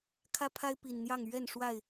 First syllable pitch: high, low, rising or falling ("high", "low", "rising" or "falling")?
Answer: high